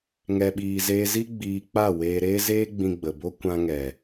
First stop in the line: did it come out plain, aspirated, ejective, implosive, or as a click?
implosive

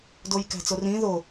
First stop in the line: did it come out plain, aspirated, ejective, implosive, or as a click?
plain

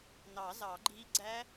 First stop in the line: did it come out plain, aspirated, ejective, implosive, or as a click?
click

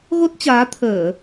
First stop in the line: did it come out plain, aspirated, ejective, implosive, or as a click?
plain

